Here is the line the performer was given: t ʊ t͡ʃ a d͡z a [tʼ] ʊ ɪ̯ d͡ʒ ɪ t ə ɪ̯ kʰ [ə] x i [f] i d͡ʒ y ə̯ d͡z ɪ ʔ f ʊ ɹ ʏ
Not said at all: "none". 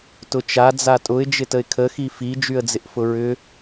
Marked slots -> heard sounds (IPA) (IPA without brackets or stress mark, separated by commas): tʼ, ə, f